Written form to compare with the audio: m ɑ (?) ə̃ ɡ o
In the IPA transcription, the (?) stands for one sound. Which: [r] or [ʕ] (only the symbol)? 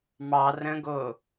r